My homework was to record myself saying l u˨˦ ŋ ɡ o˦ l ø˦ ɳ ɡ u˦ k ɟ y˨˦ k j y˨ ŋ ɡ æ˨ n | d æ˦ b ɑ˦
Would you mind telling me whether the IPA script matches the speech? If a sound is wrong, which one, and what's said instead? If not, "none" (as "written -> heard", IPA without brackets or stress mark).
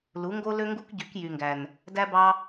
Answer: ɳ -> ŋ